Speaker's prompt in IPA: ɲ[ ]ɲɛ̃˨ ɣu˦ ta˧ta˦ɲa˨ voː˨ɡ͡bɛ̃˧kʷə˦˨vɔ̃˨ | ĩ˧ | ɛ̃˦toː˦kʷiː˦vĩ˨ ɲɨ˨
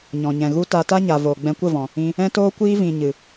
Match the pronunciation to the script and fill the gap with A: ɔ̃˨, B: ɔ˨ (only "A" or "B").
A